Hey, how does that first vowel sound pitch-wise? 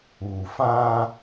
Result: low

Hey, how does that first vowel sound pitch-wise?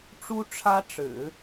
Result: high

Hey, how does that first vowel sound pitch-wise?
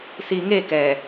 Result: low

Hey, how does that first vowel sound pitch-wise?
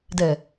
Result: low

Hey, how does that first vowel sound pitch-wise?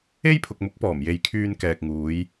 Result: high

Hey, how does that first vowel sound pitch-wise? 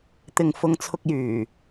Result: low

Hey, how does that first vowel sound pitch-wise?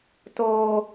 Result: high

